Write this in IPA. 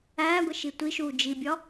æːɡʷeʃi tʷiʃuː d͡ʒibʲɒ

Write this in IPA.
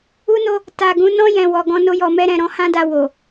u˦no˦ | ta˨ɡũ˨˦ nɔ̃˧jɛ̃˨ wɔ˨ɡɔ̃˧ no˦jɔ˧mɛ˦ɾɛ̃˧ ɾɔ̃˧hã˦da˧ wo˨

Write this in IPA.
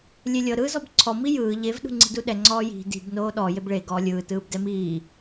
lʲelʲɤ ɾɯːzɔbǀʰɔ mijɯː ʎev ɗṳŋ͡ǀi̤duɗɛ ŋ͡ǀɔːji̤ di̤b noːɗɔ jebɭe ɡɔːlʲɯː tɯːbdɛmiː

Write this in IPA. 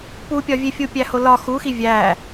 pupʲɒvʲe fʲupʲæholɒ xuxi vʲæ

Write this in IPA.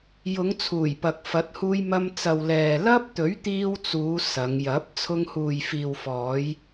jʊ˨˧ŋ t͡sʰuː˨˩jpɐ˨k̚fɐ˨˥t̚huː˧j mɐ˧mt͡sɐ˨w lɛː˨ lɐ˥p̚t̪ɵ˨˥ɥt̪iː˧wt͡suː˨˧ sɐ˨˧ŋjɐ˨˥p̚ t͡sʰʊ˧ŋhuː˨jfiː˨w fɔː˨˧j

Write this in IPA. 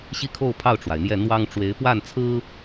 ɕi˥˧kʰo˥˧ʊ̯pʰɑ˥˩ʊ̯ʈ͡ʂwa˩ɪ̯ n̪jɛ˥˩ n̪wɑ˥ŋ ʈ͡ʂwe˧˥ɪ̯ pwa˥˩nt͡sʰɹ̩˥

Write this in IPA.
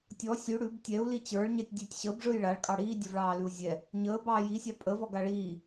tʲɔ sʲʉ ɽʉb tʲɛu̯ lit͡ɕə˞ɭɲɛtʲ dʲʉtʲ ɕəbʐɯj ɭaɭkʼɑ ɽiːdʲəvɭɑː lʉu̯zʲɛ | ɲəː bɑːjisʲɑ pʼə vɔɡaɭiː

